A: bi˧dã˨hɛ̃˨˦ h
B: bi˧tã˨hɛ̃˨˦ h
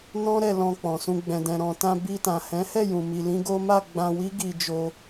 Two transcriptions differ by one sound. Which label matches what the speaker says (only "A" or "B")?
B